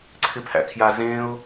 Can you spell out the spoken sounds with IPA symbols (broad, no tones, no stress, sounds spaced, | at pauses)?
ǀʰ ɪ pʰ æ̰ kʰ j a z ẽ ʊ̯